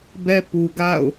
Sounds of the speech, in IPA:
bɛ˦pu˨ɡa̰˦˨ʊ̯

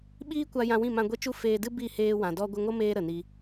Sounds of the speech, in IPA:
ɓiː˦kʷa˧ jã˧wĩ˦˨mã˧ ɡʷɛ˦t͡ʃu˦ feː˧dɨ˦ bi˦˨ heː˧wã˨ dɔ˧ɡʷə˧ŋo˦meː˧ ɾə˨ni˧

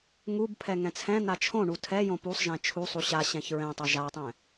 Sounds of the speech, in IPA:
ŋub pʰɛŋɛ̃t͡sʰɛ̃n̪a t͡ʃʰõɳu tʰɛ jõpusˤʒɛ̃ t͡ʃʰusˤu ɕa ɕɛ̃çɹɛ̃tˤa ʒatˤɛ̃

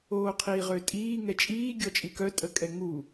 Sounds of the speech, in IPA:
oːqʰiːʁøtʼiː ŋɛt͡ʃʼiː ɡʲɔt͡ʃʼikœ tʼəkʼɛŋu

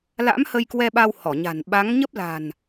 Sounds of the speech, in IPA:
la̰˧˥m hə˧jkwɛ˧ɓa˧w hɔ˧˩ɲa̤˨˩n ɓa˨˦ŋɲə˦˥p̚ la̤˨˩n

